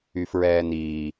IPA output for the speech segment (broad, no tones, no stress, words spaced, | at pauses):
yfɹɛːniː